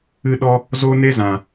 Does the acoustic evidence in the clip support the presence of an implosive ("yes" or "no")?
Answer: yes